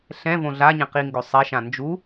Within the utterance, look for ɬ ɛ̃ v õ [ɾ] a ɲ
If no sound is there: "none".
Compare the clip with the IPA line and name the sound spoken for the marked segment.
ɮ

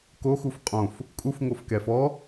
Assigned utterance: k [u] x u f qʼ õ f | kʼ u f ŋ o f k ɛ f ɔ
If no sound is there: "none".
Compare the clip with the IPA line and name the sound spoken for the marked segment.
o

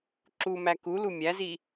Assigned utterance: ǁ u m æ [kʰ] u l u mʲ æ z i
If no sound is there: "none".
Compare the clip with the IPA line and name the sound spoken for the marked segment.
k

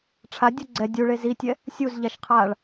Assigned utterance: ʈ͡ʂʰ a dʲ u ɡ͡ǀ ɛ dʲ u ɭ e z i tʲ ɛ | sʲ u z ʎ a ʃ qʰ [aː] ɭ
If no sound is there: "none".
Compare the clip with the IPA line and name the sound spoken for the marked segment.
aː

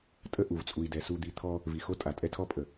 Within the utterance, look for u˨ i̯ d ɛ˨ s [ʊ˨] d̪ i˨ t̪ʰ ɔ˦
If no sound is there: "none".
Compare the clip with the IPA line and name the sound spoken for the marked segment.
u˨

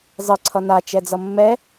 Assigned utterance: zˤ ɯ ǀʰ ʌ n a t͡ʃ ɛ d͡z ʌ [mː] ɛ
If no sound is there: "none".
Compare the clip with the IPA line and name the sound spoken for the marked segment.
mː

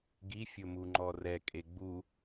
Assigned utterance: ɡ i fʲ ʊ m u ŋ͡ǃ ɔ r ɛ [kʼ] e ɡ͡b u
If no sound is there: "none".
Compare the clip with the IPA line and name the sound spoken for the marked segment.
kʼ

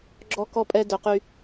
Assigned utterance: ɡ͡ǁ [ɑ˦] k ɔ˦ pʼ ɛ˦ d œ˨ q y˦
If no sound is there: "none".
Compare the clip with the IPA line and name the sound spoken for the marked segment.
ɔ˦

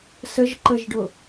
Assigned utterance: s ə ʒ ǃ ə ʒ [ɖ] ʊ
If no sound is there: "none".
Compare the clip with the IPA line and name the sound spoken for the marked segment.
ɖ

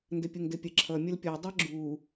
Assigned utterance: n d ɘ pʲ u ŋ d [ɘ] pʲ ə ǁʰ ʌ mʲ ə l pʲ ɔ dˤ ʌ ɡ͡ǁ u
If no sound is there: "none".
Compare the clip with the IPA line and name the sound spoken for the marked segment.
ɘ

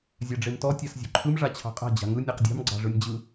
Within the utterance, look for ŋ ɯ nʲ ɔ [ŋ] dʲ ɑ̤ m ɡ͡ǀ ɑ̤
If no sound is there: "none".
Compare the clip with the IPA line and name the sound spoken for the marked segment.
q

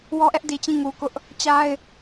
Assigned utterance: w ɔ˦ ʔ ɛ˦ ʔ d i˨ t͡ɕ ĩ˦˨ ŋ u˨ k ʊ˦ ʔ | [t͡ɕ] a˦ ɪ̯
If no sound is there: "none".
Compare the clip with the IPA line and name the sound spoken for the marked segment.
t͡ɕ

